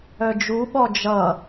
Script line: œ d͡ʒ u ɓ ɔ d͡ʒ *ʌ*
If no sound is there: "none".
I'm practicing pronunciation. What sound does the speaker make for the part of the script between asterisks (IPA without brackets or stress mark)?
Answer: ʌ